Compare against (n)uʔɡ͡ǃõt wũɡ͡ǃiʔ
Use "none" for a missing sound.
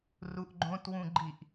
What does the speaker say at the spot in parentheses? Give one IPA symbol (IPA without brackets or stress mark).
r